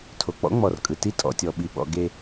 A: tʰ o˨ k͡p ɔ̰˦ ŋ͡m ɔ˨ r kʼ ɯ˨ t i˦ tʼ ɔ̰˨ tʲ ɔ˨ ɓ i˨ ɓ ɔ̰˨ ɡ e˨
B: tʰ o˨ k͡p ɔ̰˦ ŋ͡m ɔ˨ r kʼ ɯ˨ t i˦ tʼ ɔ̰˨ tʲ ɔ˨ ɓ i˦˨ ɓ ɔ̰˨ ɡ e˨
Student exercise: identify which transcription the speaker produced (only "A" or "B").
A